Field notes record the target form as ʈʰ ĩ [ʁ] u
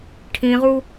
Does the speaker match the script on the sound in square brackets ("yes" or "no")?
yes